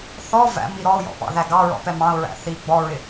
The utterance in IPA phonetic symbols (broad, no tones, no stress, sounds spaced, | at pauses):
θ ɔ v æ̰ m i ɾ ɔ ʊ̯ j ɔ̰ p ɑ̰ ð æ ɡ ɑ ɹ ɔ̰ p ɛ m ɑ̃ ʊ̯ ɹ æ̰ θ i ɡ͡b ɔ ɹ ɪ